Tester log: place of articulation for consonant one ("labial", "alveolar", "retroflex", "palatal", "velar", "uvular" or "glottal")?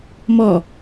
labial